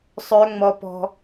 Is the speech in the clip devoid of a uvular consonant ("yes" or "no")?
yes